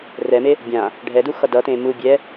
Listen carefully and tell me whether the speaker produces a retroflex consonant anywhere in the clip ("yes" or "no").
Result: yes